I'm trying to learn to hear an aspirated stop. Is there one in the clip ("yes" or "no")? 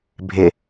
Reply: no